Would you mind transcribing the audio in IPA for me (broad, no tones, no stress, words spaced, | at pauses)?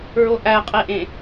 ɹoʔæqʼeʔẽ